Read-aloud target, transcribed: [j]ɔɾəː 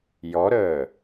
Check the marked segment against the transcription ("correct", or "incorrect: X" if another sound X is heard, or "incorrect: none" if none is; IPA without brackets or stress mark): correct